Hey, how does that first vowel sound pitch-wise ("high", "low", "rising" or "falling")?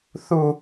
falling